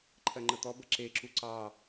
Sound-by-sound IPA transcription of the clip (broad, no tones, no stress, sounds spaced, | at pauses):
ǃʰ ɜ ŋ͡ǃ ə t̪ ɔ b ə ǁ e ǁ u ǀ ɑ